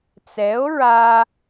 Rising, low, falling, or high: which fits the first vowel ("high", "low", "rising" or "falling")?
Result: rising